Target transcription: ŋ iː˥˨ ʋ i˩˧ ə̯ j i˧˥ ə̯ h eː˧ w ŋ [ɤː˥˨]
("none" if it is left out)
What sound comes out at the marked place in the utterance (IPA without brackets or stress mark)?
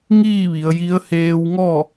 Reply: ɔː˥˨